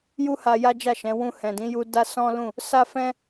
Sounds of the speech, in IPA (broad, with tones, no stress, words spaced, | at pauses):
ju˦ ha˧ ja˦d͡ʒa˦˨ʃɛ̃˨˦ wũ˧ hɛ̃˨dĩ˨˦ju˧ da˦sɔ̃˦lũ˦˨ | sa˦fɛ̃˦